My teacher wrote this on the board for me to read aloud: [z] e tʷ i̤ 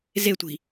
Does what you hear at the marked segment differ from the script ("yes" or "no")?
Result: no